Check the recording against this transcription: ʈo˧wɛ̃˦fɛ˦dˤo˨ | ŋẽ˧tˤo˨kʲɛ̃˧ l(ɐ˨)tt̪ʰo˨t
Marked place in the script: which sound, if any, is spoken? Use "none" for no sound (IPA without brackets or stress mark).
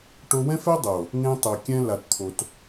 a˨